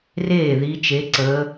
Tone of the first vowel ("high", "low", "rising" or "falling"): falling